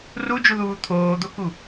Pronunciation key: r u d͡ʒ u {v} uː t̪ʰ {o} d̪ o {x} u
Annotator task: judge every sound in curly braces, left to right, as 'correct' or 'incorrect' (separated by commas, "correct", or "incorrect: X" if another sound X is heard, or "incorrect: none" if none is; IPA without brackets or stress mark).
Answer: incorrect: ð, incorrect: oː, incorrect: k